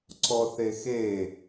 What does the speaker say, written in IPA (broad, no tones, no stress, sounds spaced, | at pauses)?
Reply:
ǀ ɔ θ e x e